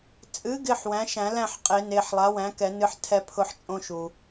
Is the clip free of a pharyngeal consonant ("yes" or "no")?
no